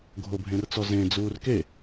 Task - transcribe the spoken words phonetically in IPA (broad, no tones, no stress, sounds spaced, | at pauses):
ɡʱ o bʱ ẽ r t͡s ɔ z ẽ d͡z uː r k e